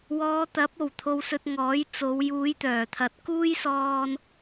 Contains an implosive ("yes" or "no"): no